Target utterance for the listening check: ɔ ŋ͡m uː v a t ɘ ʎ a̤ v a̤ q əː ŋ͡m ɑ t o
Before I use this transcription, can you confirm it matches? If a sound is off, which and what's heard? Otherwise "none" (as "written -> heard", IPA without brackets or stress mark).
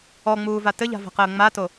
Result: ɑ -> a